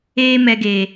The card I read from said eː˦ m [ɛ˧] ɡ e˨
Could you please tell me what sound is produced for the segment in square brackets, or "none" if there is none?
ɛ˧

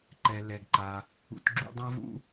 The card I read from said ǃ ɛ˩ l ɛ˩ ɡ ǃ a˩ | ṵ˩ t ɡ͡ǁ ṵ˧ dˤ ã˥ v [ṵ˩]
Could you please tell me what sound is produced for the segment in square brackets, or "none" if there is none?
ṵ˥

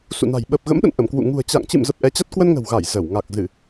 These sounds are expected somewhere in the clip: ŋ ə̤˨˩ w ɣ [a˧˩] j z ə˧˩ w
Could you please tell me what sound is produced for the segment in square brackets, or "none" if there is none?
a˧˩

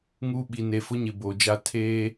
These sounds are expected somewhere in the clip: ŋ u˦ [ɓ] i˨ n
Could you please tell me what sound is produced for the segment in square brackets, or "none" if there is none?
ɓ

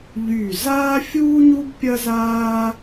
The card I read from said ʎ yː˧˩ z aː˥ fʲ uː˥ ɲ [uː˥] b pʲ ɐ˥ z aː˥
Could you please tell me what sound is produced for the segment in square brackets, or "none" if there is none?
u˥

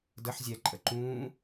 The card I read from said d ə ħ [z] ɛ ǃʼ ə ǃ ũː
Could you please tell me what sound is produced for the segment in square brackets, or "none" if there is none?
zʲ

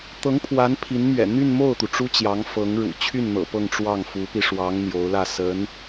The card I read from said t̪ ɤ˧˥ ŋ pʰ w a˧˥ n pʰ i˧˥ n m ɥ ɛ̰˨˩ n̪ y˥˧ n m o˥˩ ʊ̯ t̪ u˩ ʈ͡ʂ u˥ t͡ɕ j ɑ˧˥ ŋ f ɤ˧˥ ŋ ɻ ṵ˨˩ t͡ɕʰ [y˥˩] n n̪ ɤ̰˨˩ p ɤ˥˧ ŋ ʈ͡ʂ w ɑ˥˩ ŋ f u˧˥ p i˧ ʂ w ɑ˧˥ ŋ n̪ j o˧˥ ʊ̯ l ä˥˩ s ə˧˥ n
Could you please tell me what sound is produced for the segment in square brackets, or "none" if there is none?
y˥˩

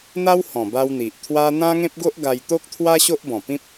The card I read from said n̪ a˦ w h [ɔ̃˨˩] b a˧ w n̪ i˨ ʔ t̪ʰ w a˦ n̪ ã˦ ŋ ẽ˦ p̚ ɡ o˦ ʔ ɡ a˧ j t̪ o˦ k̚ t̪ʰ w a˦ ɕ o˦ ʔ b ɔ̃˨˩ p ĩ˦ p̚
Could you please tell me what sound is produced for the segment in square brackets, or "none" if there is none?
ɔ̃˨˩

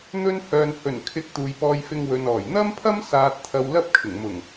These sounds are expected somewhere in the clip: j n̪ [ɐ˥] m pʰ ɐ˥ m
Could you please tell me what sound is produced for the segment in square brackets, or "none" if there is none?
ɐ˥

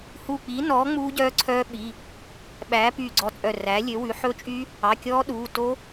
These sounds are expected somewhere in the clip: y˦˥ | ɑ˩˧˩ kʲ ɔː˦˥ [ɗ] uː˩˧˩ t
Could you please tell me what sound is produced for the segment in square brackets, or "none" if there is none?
ɗ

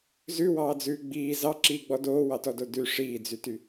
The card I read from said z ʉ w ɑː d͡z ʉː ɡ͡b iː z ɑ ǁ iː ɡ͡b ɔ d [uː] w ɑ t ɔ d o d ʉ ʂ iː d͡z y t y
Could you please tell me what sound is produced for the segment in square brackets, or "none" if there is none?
oː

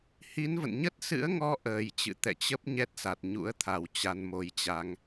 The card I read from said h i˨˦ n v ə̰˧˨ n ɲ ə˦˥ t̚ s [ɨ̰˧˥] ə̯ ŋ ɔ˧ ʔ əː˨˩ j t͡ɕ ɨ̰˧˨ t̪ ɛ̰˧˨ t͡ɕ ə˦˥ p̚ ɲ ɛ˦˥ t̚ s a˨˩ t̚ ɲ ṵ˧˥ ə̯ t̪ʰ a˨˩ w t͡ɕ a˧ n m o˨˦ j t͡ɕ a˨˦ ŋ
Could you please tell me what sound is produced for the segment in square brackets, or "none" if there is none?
ɨ̰˧˥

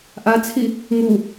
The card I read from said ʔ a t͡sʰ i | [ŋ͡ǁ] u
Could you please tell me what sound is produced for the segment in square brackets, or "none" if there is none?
ŋ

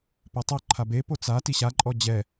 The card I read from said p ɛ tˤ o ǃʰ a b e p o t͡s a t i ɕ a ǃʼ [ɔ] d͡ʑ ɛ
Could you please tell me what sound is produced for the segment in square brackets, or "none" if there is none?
ɔ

